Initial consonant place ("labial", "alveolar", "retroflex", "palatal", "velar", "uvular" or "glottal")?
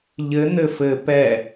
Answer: palatal